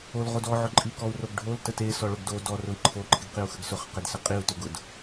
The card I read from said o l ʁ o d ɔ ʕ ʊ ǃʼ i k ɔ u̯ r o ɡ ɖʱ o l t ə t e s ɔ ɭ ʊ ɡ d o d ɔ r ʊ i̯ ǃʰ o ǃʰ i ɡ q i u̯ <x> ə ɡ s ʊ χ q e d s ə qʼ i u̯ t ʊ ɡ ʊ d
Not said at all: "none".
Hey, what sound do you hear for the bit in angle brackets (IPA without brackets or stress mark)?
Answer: x